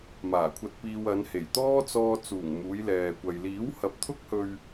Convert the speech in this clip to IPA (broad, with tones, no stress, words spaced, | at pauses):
maː˨˩kʷʰɐ˧t̚piː˧w ɐ˨˧nhe˨˩jt̪ɔː˥ t͡sɔː˧t͡suː˨˩ŋ muː˨˧jlɛː˨kʷɐ˨j liː˨˥whɐ˨˥p̚t̪ʰʊ˥k̚hɵ˧ɥ